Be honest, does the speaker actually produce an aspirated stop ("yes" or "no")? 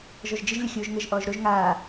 no